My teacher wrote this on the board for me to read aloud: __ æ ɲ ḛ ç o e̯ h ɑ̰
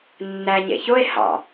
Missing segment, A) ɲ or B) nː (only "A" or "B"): B